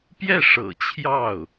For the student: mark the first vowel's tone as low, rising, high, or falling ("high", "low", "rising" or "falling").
falling